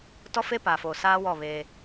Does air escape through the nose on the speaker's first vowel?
no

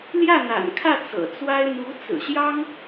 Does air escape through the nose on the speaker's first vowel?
no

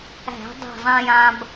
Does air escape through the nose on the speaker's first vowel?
no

